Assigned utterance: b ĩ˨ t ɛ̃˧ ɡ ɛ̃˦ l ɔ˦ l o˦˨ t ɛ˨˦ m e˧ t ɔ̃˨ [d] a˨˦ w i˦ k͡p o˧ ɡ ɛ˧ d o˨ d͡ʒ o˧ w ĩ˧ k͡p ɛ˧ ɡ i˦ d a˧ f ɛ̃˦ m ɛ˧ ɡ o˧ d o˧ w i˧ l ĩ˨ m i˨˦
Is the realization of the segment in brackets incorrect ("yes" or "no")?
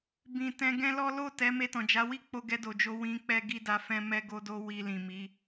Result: yes